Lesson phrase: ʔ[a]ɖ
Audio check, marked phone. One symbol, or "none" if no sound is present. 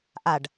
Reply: a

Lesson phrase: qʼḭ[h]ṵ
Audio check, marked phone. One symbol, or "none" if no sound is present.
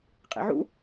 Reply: ʕ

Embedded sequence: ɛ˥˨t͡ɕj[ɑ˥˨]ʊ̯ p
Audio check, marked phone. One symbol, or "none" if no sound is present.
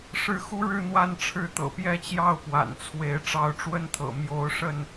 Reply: ɑ˥˨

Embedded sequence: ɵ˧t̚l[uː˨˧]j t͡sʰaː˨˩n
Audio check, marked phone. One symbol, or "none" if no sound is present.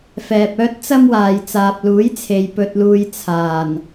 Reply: uː˧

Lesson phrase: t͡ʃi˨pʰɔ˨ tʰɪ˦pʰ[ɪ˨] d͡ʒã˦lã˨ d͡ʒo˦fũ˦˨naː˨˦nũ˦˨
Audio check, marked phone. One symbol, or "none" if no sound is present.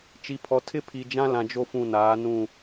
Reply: i˨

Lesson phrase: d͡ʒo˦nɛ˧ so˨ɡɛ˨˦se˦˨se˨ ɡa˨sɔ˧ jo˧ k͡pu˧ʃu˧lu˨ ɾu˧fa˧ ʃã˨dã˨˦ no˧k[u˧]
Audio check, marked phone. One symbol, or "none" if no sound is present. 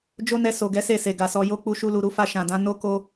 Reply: o˧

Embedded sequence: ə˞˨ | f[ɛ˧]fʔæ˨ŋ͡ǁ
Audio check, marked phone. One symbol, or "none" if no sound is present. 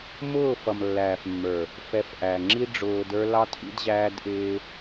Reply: ɛ˧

